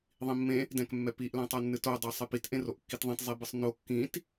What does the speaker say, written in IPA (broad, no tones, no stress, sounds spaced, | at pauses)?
ðˤ ĩ mː ẽ | d ɛ̃ k mː ɛ p i ʔ l æ̃ tˤ ɤ nː ɨ t o dˤ a sˤ i p i t ʔ ẽ r o ʔ kː i t ðˤ ẽ t zˤ i b ɨ sˤ n o kː ĩ t